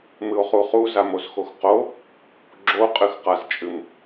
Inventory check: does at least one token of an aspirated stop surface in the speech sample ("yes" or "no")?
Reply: no